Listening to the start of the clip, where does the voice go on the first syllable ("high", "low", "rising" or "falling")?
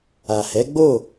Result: low